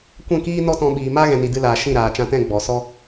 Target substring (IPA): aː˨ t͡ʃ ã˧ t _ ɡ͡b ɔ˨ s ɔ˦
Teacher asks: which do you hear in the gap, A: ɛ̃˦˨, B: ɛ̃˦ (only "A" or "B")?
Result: A